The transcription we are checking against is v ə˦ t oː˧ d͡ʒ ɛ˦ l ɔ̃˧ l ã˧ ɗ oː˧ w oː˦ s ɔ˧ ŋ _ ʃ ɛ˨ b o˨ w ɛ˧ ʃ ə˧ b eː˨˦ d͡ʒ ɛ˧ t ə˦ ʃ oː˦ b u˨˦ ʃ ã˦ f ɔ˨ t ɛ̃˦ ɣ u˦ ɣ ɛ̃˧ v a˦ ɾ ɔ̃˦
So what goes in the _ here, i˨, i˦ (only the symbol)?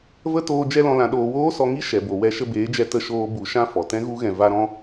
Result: i˦